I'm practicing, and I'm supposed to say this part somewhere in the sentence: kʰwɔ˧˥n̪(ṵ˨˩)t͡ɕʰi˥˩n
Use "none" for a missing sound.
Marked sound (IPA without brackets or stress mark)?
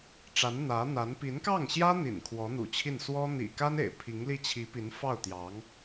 ṵ˨˩